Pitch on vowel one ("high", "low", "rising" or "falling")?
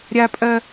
high